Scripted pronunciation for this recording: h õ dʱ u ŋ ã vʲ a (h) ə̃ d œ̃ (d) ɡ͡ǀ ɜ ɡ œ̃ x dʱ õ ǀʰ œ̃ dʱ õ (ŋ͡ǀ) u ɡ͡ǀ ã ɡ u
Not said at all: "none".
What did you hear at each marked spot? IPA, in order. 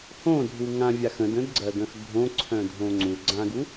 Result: x, d, ŋ͡ǀ

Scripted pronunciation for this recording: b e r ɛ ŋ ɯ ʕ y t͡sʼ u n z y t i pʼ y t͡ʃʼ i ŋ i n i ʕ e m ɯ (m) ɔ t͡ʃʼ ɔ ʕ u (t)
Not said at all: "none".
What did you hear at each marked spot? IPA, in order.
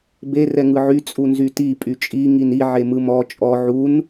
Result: m, n

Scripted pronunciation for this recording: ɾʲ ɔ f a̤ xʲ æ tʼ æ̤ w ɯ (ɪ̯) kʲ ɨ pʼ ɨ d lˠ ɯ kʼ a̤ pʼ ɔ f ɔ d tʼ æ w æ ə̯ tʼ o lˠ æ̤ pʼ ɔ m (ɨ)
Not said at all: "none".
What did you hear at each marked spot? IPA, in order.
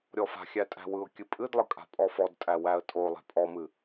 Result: ʊ̯, ɨ

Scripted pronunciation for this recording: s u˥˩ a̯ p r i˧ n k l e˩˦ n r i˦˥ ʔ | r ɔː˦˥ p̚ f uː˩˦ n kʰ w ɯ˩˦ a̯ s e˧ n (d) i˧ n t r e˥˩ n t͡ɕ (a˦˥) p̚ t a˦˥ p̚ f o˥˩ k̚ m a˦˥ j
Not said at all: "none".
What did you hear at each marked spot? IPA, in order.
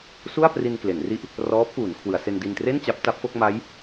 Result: d, a˦˥

